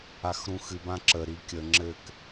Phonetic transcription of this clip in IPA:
a x ɾ ũ x ɨ b ã ǁ ə ɾ i kʲ ə ŋ͡ǁ ɘ k

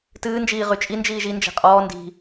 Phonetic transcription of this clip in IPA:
t ɨː n d͡ʒ iː ʁ y t͡ʃʼ i n d͡ʒ iː ʒ i n d͡ʒ ɛ̤ qʼ ɔː n d i̤

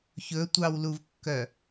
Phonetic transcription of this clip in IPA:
ç ɵ tʷ ɑ w l u v kː œ

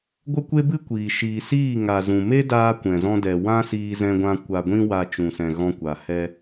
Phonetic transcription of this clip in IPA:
ɡʷ ə˦ kʷ e˦ b ɨ˦ kʷ iː˨ ʃ iː˨ s iː˦˨ ŋ a˨ z ũ˨ m e˦ d aː˧ kʷ ɛ̃˨ z ɔ̃˧ d ɛ˨ w ã˦ s iː˧ z ɛ̃˧ ɡʷ ã˧ kʷ a˨ ɡʷ ĩ˧ w a˨ t͡ʃ ũ˨ s ɛ̃˨ ɣ ɔ̃˧ kʷ a˨ h ɛ˧

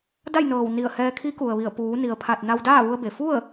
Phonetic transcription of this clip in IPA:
d a˥˨ j n ɤː˧˩ w n i˧˩ ə̯ h ɛː˧ kʰ i˧˥ k u˩ ə̯ ʋ i˧˩ ə̯ p uː˩˧ n i˩ ə̯ pʰ a˧˩ t̚ n a˧ w d aː˥˨ ʋ u˧ ə̯ b e˩ f u˥˨ ə̯

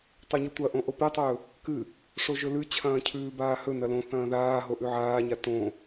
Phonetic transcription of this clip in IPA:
tˤ ɵ ɲ ʉ tʷ ɐ ʔ õ ʔ o p e tˤ ɵː | k ɨ | ʂ o ʒ ɵ l ʉ t͡ɕʰ ɐ̃ː cʰ ʉː b aː h ɵ n ɐ l õ θ ɐ̃ː ð aː ɦ o ʔ ʉ ʕ aː ɲ a t õ

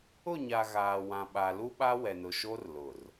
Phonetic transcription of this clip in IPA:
ʊ˦˨ ɲ a˨ ɣ aː˨ w ã˨ ɓ a˨ l u˦ ɓ a˦ w ɛ˨ n ʊ˨ ʃ o˦ r l ʊ˨ r

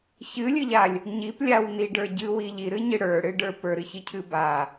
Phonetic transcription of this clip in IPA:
ç ɨ lʲ ɨ ʎ a lʲ | ɲ i p lʲ a w n i ɖ ə˞ ɟ ɨ w i ʎ i ɾ ɨ ɲ ɨ ɽ ə˞ ɽ ɨ ɖ ə˞ p ə˞ ɾ ɨ ç i cʰ ɨ b a

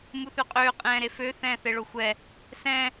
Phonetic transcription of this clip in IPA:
m u θ ø qʼ øː qʼ ɛ̃ː ɾ e f ø θ ɛ̃ː θ e ɭ o xʷ ɛ | s ɛ̃

